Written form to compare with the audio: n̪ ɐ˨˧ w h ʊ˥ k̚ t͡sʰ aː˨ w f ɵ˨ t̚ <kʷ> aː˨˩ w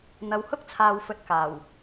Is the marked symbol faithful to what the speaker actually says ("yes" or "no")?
no